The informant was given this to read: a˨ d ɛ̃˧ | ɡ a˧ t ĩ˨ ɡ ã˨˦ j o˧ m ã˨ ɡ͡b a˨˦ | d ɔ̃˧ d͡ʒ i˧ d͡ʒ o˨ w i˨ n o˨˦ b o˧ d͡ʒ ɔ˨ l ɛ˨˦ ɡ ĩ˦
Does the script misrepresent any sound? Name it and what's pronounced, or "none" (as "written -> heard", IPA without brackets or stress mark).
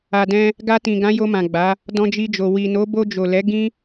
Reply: ɔ˨ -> o˨